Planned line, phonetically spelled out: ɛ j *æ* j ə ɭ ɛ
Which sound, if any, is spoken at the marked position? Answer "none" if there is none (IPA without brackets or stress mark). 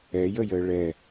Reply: ə